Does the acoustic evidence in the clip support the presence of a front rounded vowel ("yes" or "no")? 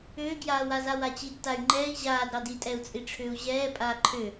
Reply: yes